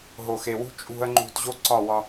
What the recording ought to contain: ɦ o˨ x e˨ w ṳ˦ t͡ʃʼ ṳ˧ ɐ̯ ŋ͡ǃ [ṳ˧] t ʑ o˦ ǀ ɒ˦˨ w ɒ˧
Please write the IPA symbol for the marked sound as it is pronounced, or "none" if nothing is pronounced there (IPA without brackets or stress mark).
ṳ˧